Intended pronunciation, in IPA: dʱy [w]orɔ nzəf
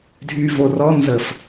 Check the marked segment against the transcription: incorrect: v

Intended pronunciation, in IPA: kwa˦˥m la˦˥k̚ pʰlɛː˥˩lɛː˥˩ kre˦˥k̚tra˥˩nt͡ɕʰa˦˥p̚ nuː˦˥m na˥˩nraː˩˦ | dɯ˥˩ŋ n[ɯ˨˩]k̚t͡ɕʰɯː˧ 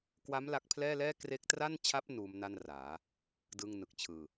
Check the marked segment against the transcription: correct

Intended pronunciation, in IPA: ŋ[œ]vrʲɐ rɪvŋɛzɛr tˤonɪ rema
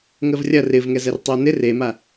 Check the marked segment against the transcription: incorrect: ə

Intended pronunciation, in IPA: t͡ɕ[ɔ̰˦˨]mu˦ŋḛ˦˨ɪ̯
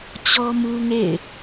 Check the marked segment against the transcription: incorrect: ɔ˦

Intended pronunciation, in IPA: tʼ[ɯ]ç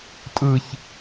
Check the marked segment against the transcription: correct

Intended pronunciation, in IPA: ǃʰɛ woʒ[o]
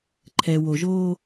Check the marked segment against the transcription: incorrect: oː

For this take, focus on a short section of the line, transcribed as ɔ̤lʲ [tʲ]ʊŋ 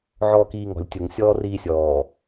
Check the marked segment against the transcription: correct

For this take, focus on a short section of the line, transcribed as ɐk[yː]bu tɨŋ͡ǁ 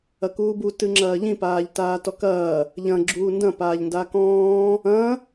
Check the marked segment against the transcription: incorrect: uː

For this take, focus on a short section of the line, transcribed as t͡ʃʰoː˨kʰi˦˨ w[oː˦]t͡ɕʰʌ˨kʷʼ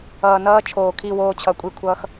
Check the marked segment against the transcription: correct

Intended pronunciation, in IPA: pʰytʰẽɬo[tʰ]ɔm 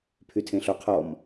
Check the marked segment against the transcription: incorrect: qʰ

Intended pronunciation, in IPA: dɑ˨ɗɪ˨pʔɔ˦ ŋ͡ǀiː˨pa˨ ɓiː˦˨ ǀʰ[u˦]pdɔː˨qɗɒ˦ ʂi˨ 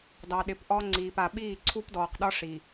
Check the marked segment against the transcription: correct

